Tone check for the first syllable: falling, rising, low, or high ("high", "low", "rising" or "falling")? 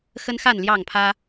high